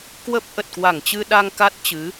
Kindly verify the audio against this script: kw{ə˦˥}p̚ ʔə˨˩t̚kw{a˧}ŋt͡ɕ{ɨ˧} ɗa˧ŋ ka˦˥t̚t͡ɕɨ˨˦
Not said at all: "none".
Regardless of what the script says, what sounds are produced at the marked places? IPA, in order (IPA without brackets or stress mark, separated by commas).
ə˦˥, a˧˩, ɨ˧